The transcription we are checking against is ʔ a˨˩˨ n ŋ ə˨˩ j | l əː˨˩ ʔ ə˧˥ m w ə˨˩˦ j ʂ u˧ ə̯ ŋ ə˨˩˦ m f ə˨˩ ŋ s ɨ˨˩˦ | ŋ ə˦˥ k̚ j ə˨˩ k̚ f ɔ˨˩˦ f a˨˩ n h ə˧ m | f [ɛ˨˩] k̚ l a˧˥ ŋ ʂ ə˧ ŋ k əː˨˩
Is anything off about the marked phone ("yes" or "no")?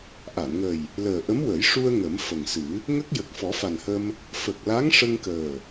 yes